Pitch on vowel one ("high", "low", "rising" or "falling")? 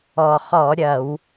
low